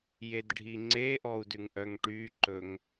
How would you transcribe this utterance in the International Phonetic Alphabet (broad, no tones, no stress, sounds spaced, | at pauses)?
j e d ɖʱ i ŋ͡ǀ e ʔ ɔ u̯ d ʉ ŋ ʔ œ ŋ ʈ y ǃ ɵ ŋ